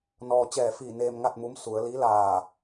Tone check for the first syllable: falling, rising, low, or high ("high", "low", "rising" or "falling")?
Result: low